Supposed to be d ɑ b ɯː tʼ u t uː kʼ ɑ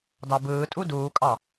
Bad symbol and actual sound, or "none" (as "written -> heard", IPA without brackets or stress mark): t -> d